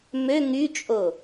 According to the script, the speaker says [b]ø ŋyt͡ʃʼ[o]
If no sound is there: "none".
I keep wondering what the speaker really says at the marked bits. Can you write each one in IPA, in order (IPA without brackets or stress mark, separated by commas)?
m, o